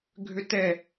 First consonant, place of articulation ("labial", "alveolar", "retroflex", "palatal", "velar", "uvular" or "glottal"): velar